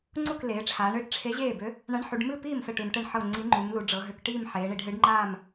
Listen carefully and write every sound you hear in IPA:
ŋ͡ǀ u˥˨ k l eː˩˧ ʈ͡ʂʰ aː˩˧ ɳ ɨː˧˥ ʈ ʈ͡ʂʰ e˧˥ ʑ eː˥˨ b ø˧˥ | ɳ a˧˥ ɳ ħ u˩˧ ɖ m ɨ˥˨ p iː˥˨ m s ɤ˥˨ ʈ ɨ˩˧ m ʈ ɛ˥˨ ɳ ħ ɤ˥˨ ŋ͡ǀ i˧˥ ŋ͡ǃ u˩˧ m l u˩˧ ɖ͡ʐ ɤ˩˧ ɦ ø˩˧ k ʈ iː˥˨ m ħ eː˩˧ ɳ i˩˧ ɖ ɦ ɨ˧˥ ɖ ŋ͡ǃ aː˥˨ m

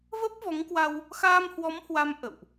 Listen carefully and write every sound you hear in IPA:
v ə˦˥ p̚ v ɔ˨˦ ŋ k w a˧ w | x aː˧ m h w ɔ˨˦ m h w a˨˦ m ʔ ə̰˧˨ w ʔ

